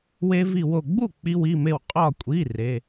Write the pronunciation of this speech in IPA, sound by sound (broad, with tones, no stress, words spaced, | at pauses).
we˧vi˧˩wo˧˩ ɡ͡bu˥˩ k͡pi˧ wi˩˧˩me˧˩w qʼɒ˧˩kʷʼi˩˧˩ re˩˧˩